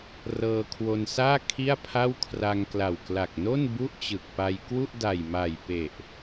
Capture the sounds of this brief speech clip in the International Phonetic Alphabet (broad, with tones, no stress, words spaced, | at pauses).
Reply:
rɤː˧kʰwo˧nsaː˥˩ kʰi˥˩a̯pʰa˥˩w kʰra˧ŋkla˨˩wkla˨˩k̚ no˥˩n bu˥˩ʔt͡ɕɯ˨˩k̚pa˧j kwu˥˩ʔda˨˩jma˨˩j pe˨˩ʔ